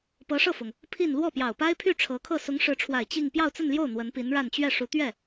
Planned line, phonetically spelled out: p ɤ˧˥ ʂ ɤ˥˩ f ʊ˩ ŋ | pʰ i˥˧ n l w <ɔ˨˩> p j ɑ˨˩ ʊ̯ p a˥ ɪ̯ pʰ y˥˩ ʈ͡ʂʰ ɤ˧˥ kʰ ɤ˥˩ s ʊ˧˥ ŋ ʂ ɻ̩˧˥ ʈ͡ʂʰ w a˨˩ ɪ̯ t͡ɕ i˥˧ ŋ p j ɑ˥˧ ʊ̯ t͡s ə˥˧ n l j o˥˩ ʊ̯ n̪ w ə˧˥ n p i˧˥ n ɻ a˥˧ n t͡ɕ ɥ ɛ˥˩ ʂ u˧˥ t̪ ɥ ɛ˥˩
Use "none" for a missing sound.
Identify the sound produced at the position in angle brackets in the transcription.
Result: ɔ˥˩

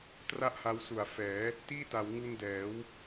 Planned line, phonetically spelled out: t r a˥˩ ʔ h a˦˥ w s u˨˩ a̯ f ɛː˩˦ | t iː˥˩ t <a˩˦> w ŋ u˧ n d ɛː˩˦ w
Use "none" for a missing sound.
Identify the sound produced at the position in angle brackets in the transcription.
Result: a˩˦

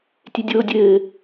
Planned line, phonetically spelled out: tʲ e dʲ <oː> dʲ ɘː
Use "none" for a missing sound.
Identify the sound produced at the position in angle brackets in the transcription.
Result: oː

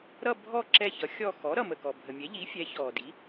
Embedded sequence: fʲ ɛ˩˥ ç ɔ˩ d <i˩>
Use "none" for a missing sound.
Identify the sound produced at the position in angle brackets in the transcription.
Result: i˩˥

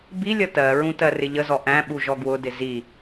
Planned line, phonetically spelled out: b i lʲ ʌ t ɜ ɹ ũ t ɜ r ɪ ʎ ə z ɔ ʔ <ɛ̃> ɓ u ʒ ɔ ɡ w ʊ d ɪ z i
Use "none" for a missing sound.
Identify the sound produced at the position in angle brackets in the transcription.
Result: æ̃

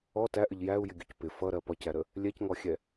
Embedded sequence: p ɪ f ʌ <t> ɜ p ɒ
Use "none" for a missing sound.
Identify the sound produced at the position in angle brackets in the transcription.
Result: ɾ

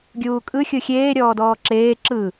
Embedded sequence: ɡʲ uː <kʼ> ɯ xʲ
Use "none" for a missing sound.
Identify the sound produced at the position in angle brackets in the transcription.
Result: kʼ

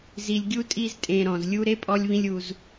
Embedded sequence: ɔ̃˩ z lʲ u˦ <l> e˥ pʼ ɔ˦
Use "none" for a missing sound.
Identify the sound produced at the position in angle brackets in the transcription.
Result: ɾ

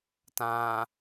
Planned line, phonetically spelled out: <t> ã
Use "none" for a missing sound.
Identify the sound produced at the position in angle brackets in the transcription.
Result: t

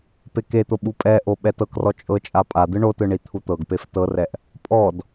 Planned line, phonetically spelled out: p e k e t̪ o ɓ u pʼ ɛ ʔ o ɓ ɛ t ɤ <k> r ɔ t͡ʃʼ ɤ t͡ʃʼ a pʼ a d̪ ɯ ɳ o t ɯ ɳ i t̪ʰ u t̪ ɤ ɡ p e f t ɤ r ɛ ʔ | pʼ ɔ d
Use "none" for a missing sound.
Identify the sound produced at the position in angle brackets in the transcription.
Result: k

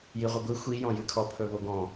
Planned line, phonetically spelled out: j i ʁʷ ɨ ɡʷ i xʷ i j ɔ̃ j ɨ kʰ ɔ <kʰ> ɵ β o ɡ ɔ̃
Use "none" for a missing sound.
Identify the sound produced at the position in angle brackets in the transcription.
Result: pʰ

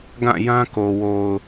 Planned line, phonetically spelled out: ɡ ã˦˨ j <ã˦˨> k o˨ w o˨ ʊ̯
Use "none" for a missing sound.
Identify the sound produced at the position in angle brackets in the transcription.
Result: ã˦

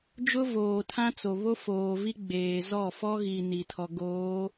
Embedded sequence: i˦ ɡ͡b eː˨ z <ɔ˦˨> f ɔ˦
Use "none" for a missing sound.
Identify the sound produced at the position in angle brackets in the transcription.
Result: ɔ˦˨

